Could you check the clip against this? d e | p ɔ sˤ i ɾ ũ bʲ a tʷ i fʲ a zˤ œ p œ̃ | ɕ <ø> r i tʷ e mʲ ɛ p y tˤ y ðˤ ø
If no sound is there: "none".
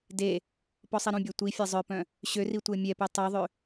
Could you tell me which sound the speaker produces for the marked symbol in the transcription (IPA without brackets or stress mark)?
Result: ø